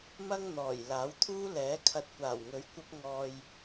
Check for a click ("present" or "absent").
absent